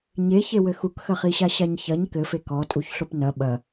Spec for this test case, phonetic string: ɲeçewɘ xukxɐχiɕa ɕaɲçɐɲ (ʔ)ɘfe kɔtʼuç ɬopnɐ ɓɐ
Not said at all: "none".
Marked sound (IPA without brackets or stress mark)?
k